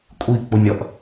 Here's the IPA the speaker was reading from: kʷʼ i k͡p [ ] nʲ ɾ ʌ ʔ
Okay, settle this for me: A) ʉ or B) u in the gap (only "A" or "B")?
B